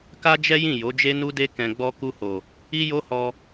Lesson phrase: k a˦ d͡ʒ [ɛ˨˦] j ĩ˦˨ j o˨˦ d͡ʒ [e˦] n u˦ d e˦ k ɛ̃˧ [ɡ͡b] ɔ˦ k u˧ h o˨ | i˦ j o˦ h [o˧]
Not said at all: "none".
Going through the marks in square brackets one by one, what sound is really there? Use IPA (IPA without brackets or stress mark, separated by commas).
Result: ɛ˦, e˦, ɡ͡b, ɔ˧